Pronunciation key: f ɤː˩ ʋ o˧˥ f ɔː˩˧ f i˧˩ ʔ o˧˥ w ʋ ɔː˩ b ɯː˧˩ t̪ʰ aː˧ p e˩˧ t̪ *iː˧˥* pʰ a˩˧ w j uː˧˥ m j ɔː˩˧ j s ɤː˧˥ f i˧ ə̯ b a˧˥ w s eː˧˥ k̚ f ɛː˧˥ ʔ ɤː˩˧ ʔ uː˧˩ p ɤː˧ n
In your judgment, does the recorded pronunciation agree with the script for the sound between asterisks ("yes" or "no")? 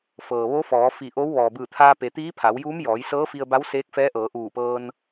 yes